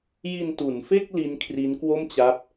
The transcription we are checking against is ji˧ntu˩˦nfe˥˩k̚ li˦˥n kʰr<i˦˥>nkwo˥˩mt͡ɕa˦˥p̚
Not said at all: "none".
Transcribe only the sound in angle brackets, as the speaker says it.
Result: i˦˥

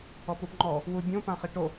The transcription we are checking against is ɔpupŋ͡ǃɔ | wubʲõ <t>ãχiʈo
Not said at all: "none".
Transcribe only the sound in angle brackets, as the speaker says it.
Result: p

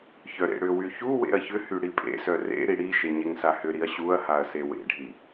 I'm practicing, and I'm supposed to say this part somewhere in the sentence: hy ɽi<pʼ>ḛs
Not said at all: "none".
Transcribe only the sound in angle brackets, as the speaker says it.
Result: pʼ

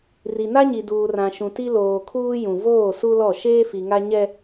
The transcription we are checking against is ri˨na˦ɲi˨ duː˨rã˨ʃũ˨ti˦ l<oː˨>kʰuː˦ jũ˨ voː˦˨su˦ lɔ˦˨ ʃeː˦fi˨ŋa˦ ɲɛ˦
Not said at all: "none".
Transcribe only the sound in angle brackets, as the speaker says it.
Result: oː˨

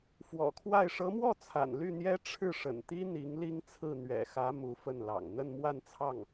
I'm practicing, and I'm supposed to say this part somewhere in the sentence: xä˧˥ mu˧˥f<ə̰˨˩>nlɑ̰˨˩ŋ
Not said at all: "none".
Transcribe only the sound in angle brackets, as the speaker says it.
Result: ə˥˩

